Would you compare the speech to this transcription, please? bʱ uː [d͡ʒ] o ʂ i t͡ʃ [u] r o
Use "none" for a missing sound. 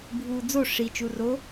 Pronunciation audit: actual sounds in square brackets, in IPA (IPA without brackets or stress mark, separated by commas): d͡z, u